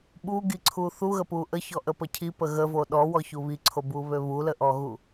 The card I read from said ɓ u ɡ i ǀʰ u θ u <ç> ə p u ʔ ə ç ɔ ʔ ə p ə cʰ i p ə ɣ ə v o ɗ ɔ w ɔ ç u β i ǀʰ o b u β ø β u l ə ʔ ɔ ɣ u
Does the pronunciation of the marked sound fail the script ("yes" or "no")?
yes